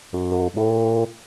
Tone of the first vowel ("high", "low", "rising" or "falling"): low